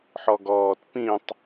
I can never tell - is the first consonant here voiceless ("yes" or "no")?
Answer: yes